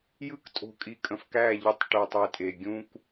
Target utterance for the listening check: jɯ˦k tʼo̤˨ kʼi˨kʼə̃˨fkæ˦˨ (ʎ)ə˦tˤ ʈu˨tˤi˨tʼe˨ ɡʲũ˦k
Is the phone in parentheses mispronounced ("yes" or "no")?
no